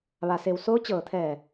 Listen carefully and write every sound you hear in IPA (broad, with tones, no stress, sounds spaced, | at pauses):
ʋ a˩ s e˩ w s oː˧˥ t͡ɕ ɤː˧˩ t̪ʰ ɛː˧˩